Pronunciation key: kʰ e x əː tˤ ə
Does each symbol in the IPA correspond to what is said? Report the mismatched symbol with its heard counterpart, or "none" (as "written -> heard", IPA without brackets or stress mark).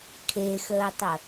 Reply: none